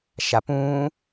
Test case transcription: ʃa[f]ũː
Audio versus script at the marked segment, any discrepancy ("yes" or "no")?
yes